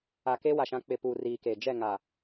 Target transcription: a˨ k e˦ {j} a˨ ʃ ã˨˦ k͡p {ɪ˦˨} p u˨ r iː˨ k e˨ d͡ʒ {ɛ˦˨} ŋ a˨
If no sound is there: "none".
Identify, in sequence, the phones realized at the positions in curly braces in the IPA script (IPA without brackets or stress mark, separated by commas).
w, ɪ˨, ɛ˦˨